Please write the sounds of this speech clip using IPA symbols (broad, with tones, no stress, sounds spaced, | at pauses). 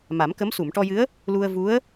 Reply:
m a˨˩˦ m k ə˧˥ m s u˨˩˨ m ʈ ɔ˧ j ɨ˧˥ ə̯ | l u˧ ə̯ v u˧˥ ə̯